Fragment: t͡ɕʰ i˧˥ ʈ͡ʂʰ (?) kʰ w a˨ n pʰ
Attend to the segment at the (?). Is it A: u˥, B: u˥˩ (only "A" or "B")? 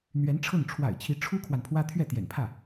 A